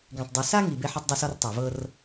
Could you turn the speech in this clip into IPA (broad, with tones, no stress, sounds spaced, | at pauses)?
ɡ ẽ˨ tˤ dˤ i˨ s a˦ ŋ i˨ b e˧ ħ ɤ˧ tˤ dˤ ɤ˧ s ɔ˧ r tˤ a˨ v ɤ˧ r